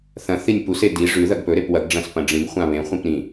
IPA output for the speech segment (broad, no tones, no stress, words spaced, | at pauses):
θɐ̃ θinʲpuse di ʐʉ ðɐɡpɵɾep wɐɡɖ͡ʐɐ̃s pɐ̃ɖ͡ʐĩɡχʷã βẽχʷĩp ɾĩ